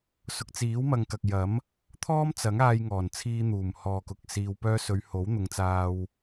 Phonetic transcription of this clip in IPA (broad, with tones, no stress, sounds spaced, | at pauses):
s ʊ˨ k̚ t͡s iː˨˥ w m ɐ˨ ŋ k ɐ˨ k̚ j ɐ˨˥ m | t̪ʰ ɔː˥ m t͡s ɐ˨˥ ŋ aː˧ j ŋ ɔː˨˩ n t͡sʰ iː˧ n̪ uː˨˩ m h ɔː˨ k ʊ˨ k̚ s iː˧ w p œː˥ s ɵ˨˧ ɥ h o˨˥ w n̪ ʊ˨˧ ŋ t͡s aː˧ w